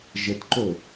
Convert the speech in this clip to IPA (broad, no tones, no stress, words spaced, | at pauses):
ʒətǃo